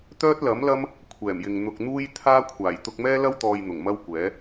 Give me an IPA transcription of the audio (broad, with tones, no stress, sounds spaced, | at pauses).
t̪ œː˥ t̚ l ɐ˨˥ m l ɐ˥ m | kʷʰ ɛː˨˩ m j ɪ˨ ŋ n̪ ʊ˧ k̚ n̪ uː˥ j t̪ʰ aː˥ kʷʰ aː˨˩ j t̪ ʊ˧ k̚ m ɛː˥ l ɐ˥ w t̪ ɔː˨ j n̪ ʊ˨˩ ŋ m ɐ˥ w kʷ ɛː˨˥